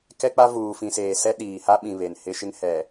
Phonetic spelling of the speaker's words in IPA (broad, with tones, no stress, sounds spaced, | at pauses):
k ɛ˦ k͡p a˦ v uː˨ f ĩ˨ s eː˨ s ɛ˦ ɗ iː˨ h a˦ ɓ ĩ˨ β e˨ n h ɪ˦ ʃ ɪ˦ ŋ h ɛ˨